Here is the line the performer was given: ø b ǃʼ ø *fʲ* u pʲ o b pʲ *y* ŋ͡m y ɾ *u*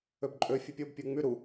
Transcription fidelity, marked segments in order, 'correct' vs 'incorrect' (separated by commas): correct, incorrect, correct